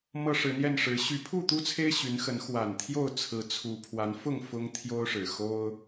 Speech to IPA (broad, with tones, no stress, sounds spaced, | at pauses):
m ɤ˦ ʂ ɻ̩˨˦ n̪ j ɛ˥˨ n ʂ ɻ̩˨˦ ɕ y˨˦ pʰ u˥˨ t̪ u˦ t͡sʰ e˦ ɪ̯ ɕ y˨˦ n x ə˨˦ n x w a˨˩ n t̪ʰ j o˥˨ ʊ̯ t͡sʰ ɹ̩˨˦ t͡sʰ u˨˦ pʰ w a˨˦ n f ʊ˥˨ ŋ f ʊ˦ ŋ t̪ʰ j o˦ ʊ̯ ʂ ɻ̩˨˩ x o˦ ʊ̯